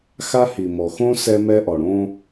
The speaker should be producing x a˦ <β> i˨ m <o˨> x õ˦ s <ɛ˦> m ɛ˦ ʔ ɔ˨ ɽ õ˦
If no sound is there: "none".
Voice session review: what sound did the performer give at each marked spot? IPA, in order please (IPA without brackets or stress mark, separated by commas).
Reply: h, ɔ˨, ɛ˦